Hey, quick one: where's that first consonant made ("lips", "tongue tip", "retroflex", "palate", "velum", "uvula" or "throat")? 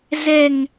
tongue tip